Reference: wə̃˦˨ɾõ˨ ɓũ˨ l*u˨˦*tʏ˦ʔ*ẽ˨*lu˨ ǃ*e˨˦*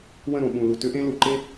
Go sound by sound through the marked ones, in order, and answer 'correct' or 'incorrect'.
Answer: incorrect: u˨, incorrect: ẽ˦, incorrect: e˦

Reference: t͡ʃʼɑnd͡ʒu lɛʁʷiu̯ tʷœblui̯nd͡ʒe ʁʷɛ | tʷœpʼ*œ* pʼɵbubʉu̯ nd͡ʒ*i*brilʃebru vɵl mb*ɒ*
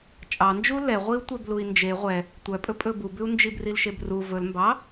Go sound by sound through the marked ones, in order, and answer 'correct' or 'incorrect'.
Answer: incorrect: ɵ, correct, incorrect: ɑ

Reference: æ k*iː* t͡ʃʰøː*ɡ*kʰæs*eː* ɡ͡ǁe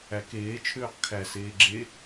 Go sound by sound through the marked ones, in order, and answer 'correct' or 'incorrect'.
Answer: incorrect: eː, incorrect: q, correct

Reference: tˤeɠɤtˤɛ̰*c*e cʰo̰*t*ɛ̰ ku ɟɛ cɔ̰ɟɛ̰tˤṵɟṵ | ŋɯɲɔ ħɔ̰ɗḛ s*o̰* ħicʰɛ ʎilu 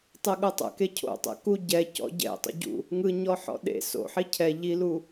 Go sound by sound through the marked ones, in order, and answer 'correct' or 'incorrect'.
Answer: incorrect: k, incorrect: tˤ, correct

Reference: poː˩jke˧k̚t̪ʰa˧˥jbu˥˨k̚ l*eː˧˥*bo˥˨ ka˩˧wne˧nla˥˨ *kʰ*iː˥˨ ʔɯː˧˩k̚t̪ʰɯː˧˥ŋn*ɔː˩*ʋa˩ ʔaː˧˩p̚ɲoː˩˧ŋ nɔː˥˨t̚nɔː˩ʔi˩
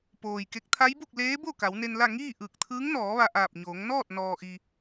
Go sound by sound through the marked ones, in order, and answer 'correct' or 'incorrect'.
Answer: correct, incorrect: ŋ, incorrect: ɔː˩˧

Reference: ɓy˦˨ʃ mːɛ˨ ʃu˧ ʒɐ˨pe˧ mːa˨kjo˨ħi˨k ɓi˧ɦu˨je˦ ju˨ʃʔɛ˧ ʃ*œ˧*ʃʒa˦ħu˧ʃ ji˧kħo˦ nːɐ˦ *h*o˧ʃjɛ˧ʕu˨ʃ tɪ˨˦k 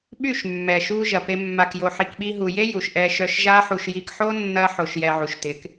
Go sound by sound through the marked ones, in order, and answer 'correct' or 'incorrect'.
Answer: correct, incorrect: ħ

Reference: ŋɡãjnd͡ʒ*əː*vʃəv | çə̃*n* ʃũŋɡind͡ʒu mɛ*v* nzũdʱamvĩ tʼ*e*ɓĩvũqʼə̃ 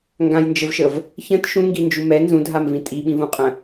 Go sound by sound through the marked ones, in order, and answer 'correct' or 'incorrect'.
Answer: incorrect: ə, incorrect: t, incorrect: none, incorrect: i

